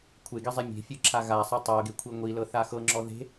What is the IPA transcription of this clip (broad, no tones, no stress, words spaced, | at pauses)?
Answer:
kʷʰeɡizˤi mʲe̤fʲɯǁʰa ɣasˤe tˤɤɡekʷʰi ŋʷilɤθa xɤŋ͡ǁɔ ðe̤